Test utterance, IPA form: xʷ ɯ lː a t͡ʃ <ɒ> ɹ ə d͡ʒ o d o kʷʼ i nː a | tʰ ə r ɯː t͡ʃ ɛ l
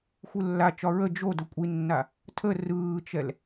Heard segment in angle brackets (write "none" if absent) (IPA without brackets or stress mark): ɒ